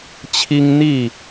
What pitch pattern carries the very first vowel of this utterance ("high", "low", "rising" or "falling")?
high